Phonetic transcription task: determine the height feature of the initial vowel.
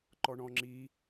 mid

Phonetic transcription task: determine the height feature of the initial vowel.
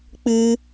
high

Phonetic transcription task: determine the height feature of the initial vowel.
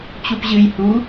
high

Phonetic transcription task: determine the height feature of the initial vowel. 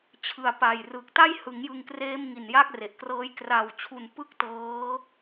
high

